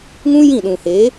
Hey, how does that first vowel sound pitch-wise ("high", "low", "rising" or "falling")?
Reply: high